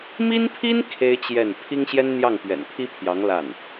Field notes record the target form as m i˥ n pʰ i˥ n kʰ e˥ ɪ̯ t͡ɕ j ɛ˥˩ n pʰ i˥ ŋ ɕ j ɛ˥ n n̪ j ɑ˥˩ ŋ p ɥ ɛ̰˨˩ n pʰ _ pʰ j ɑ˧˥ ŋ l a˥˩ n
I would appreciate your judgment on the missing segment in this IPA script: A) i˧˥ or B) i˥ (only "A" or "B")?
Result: B